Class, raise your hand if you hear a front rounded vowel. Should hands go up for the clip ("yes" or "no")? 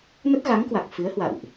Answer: no